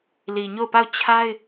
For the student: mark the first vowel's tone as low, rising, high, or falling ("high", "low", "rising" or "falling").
low